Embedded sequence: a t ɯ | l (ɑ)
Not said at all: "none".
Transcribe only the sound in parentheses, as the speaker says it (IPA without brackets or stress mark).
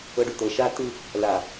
a